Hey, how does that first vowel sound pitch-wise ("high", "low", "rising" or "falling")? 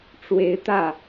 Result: rising